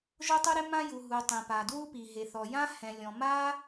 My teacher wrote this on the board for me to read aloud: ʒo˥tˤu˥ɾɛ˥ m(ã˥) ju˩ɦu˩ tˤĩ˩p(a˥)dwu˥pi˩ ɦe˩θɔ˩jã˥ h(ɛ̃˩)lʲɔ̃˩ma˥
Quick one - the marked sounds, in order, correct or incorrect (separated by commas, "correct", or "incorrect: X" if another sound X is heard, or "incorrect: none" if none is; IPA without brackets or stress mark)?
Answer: correct, incorrect: a˩, correct